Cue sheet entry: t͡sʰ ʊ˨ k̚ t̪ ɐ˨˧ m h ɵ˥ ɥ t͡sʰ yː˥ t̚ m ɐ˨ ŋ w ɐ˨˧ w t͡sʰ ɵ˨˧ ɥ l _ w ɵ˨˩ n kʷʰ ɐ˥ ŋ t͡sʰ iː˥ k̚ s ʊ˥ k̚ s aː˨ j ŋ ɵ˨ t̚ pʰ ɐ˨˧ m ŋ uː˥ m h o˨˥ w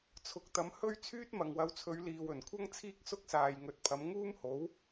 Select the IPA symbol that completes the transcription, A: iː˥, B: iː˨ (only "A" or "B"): B